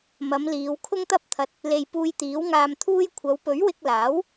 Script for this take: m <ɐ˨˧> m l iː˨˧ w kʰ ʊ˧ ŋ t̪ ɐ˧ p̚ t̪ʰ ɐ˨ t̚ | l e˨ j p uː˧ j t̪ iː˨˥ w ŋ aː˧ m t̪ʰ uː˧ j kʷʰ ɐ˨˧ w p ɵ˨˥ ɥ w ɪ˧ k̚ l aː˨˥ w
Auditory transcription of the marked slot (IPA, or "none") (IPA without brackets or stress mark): ɐ˨˧